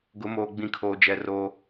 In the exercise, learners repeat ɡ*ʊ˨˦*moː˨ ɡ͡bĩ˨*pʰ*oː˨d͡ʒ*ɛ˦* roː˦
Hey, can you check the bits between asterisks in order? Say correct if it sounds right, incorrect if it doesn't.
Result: correct, incorrect: kʰ, incorrect: ɛ˨

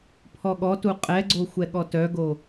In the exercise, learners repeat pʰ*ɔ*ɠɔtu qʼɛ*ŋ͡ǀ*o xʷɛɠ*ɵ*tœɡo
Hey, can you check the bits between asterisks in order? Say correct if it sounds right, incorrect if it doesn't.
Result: correct, incorrect: ɡ͡ǀ, incorrect: ɔ

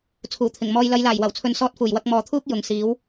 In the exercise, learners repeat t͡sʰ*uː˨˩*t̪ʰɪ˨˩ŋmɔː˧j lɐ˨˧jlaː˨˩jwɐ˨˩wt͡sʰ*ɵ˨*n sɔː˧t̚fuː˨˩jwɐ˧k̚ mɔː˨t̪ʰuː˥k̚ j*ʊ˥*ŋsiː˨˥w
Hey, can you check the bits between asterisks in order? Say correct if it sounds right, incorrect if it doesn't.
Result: correct, correct, incorrect: ʊ˨

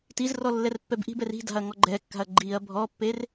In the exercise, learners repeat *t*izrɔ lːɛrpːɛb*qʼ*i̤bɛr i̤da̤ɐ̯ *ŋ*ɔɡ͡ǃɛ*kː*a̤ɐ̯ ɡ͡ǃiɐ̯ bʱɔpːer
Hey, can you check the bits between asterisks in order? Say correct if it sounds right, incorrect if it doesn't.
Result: correct, incorrect: ʔ, correct, correct

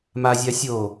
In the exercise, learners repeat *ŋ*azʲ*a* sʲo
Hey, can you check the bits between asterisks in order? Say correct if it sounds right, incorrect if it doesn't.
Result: incorrect: m, correct

